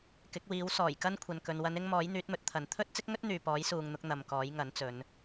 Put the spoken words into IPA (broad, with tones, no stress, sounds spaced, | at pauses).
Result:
k ɪ˨˥ k̚ w iː˨˥ w s ɔː˨˩ j k ɐ˥ n kʷʰ ɐ˨ n k ɵ˨ n w ɐ˨˧ n ɪ˧ ŋ m ɔː˨˥ j n̪ yː˨˥ t̚ m ɵ˨˥ t̚ t̪ʰ ɐ˨ n t̪ʰ ɵ˥ t̚ t͡s ɪ˥ k̚ ŋ ɵ˥ t̚ n̪ yː˨ p ɔː˨˥ j s uː˨ ŋ n̪ ʊ˧ k̚ n̪ ɐ˨ m k ɔː˨˥ j ŋ ɐ˨˥ n t͡s ɵ˨˧ n